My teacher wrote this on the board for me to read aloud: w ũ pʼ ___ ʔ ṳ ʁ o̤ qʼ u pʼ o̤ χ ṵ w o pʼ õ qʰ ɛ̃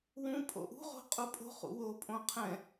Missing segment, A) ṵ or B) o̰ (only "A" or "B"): B